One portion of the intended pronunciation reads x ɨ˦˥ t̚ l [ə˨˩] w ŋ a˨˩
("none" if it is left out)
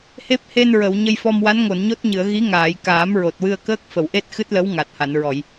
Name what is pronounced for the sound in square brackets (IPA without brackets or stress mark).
ə˧˥